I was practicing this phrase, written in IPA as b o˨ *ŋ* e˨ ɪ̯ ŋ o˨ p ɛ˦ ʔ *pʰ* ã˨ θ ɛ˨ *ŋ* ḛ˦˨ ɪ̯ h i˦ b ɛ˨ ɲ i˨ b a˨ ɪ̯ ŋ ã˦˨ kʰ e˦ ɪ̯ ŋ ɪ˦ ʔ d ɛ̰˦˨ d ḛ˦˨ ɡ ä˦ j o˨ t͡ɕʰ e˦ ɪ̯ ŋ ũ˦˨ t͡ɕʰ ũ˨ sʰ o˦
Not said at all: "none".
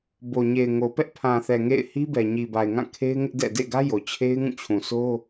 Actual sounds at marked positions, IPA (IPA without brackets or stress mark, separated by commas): ɲ, pʰ, ŋ